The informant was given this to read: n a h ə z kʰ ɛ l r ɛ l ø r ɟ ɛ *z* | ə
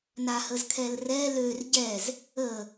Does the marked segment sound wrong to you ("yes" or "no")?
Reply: no